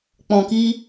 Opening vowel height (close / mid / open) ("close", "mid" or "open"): mid